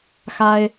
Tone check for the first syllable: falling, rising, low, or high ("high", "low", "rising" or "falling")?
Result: high